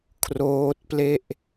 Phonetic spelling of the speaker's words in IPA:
kʰ r oː˦˥ t̚ p l e˥˩ ʔ

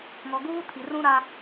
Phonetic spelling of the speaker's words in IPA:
ŋ ɔ˨ ɡ uː˦ tʰ i˨ r ũ˦ ɾ a˦

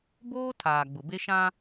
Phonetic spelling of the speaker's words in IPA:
b oː˦ tʰ aː˨ ɡ͡b ʊ˨ b e˦ ʃ ã˦

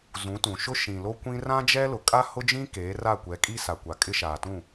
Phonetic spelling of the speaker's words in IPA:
z ũ˨˦ t ũ˨ ʃ ʊ˦ ʃ ĩ˨ l o˦ kʷ ĩ˦ r ã˦ d͡ʒ ɛ˦ l ʊ˨ kʼ a˦ h ʊ˦ d͡ʒ ĩ˦ k eː˨˦ r a˦˨ kʷ ɛ˨˦ kʼ i˦ s a˨ kʷ a˨ kʼ ɪ˦ ʃ aː˨ t ũ˦˨

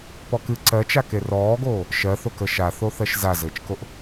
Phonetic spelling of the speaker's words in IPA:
p ɔ k ɨ ǀ ɜ t͡ʃ a k e r ɔː ɡ oː | ʃ ɜ θ o k ə ʃ a θ o θ ɜ ʃ z a z ɘː t͡ʃ k o ʔ

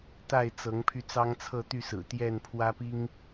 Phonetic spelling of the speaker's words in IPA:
t̪ a˥˨ ɪ̯ t͡s ɤ˨˦ ŋ pʰ y˧ t͡s ɑ˦ ŋ t͡sʰ ɤ˥˨ t̪ y˥˨ s ɹ̩˨˩ t̪ j ɛ˥˨ n pʰ w ä˦ p i˦ ŋ

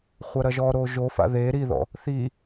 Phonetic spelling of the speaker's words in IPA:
χʷ ɐ ɾ ɐ ʒ ɔ ɾ o ʒ o f a̰ ð e ɾ i ð ɔ̰ | θ i

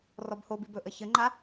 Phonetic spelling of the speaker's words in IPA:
r ɔ b h o b i b ɵ ʔ ə ç ə ŋ͡ǃ a

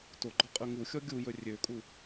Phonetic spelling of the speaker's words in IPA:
t o ɡ͡ǃ ɔ qʼ ʉ ŋ u xʲ ɔ ɡʲ u j ɵ rʲ ø kʼ u

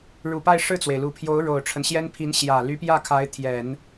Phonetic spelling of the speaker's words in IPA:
ɻ u˨˩ p a˥˧ ɪ̯ ʂ ɻ̩˥˩ t͡s w e˩ ɪ̯ l u˨˩ pʰ j o˧˥ ʊ̯ ɻ o˨˩ ʊ̯ ʈ͡ʂʰ ə˦ n ɕ j ɛ˥ n pʰ i˧˥ n ɕ j ä˨˩ l y˧˥ p j ä˥˩ kʰ a˧˥ ɪ̯ t̪ʰ j ɛ˨˩˦ n

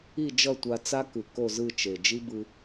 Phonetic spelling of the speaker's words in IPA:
i˥˧ d͡ʒ ʌ˥˧ tʷ a˧ t͡s a˥ k ɯ˨˩ k o˥˧ z ɯ˥˧ t͡ʃ e˨˩ d͡ʒ i˥ b ɯ˧

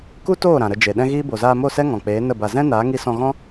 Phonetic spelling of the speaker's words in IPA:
k u˦ t oː˦˨ ɾ ã˨ ɾ ə˧ d͡ʒ e˨ ɗ ɛ̃˦ ɣ iː˦ b o˨ z aː˧ m o˦˨ s ɛ˦ ŋ ɔ̃˨ k͡p eː˨˦ n ə˦˨ b a˧ z ɛ̃˦ n aː˨˦ ŋ i˧ s ɔ̃˧ ɣ ɔ̃˦

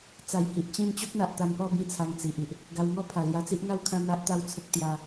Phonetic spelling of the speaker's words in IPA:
t͡s a˨˩ j h i˨ ʔ t͡ɕ ĩ˥˧ n t͡ɕ o˦ k̚ n̪ a˨ ʔ t̪ a˧ n p ɔ˥˧ b ĩ˦ t͡sʰ a˧ ŋ t͡s i˨ ʔ i˨ ʔ | ɡ a˧ w ŋ ɔ˦ pʰ a˨˩ l j a˧ t͡s i˦ ʔ ŋ a˦ w kʰ ã˦ n̪ a˦ ʔ t̪ a˦ w t͡sʰ ə˦ k̚ t̪ j a˦

